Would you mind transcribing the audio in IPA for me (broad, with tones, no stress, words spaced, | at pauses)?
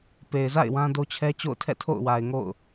pe˨ɪ̯za̰˦˨ɪ̯ wã˦do˦t͡ɕʰɛ˦ t͡ɕo̰˦˨ʊ̯tʰɛ̰˦˨ tʰo̰˦˨ʊ̯wa˨ɪ̯ŋo̰˦˨ʊ̯